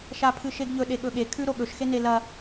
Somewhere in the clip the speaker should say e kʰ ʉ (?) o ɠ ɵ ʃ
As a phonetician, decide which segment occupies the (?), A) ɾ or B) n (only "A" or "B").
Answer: A